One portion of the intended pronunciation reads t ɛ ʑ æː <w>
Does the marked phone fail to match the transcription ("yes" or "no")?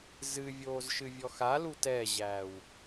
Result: no